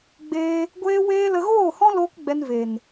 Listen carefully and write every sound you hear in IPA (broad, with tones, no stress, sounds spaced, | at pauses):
ɡ͡b eː˧ | ɡʷ eː˧ w eː˧ l ə˧ ɣ oː˦˨ h ɔ̃˦ l oː˦ k ɡ͡b ɛ˧ n v e˨ n